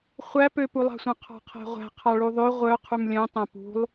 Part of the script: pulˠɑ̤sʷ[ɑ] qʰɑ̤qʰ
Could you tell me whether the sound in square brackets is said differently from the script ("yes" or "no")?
yes